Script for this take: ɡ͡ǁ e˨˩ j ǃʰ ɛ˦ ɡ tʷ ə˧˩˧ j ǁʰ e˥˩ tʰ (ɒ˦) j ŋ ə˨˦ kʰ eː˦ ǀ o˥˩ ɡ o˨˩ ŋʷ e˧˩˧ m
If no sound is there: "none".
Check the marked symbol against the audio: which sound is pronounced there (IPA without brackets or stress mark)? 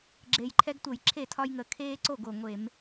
ɒ˦